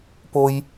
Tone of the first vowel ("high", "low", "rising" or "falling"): low